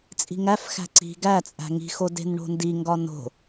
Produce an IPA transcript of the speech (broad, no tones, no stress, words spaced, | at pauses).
t͡sʼi̤ŋæfxæ̤ ǀi̤ ɡæt͡sʼæ̤ ŋi̤xo de̤nɳo̤ndiŋɡɒ no̤